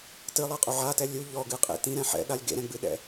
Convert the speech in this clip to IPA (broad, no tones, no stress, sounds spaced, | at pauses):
t ɨ lˠ a qʼ o ʕ a t ɛ lʲ u ʎ ɔ ɡ ɨ qʼ ḛ t ĩ ɾ ɛ̃ ħ ɛ̰ ɗ a lʲ ɡ ḛ ɾ ɛ̃ ɡ͡b ɨ ɗ ɛ̰